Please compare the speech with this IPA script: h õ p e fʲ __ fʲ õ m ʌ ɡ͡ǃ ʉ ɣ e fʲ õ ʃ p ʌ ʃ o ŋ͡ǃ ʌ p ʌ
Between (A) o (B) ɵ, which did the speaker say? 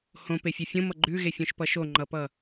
B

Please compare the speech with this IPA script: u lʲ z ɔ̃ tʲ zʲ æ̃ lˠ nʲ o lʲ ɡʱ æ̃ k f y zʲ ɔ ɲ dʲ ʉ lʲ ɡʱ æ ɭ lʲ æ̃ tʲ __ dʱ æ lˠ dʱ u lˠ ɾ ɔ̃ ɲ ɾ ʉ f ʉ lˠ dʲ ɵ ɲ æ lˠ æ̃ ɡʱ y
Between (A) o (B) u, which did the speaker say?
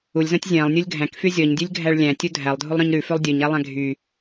B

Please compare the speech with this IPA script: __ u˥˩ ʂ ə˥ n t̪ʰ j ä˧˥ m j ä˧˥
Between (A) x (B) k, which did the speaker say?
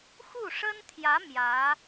A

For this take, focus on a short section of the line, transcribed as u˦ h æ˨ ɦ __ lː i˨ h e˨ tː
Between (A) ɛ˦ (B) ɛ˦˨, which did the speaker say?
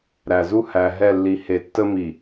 B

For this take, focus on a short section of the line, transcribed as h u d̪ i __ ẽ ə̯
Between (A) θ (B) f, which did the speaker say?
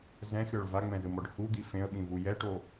B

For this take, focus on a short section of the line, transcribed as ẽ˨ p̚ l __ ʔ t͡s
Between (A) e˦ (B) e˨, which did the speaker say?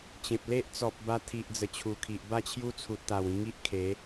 A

